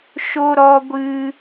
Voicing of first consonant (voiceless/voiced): voiceless